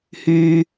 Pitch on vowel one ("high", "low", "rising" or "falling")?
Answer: high